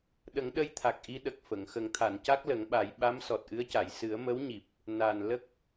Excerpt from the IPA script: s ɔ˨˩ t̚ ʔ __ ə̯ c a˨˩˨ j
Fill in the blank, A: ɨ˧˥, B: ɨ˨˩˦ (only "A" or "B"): A